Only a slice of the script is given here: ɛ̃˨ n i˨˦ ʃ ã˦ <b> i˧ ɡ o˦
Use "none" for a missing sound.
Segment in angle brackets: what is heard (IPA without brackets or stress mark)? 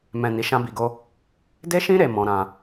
b